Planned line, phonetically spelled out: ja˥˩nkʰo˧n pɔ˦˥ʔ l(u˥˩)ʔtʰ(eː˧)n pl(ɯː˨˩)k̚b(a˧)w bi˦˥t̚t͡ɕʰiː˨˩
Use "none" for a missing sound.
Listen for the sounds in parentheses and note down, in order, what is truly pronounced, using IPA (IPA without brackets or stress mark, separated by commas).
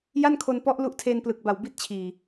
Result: u˦˥, eː˧, ɯ˨˩, a˨˩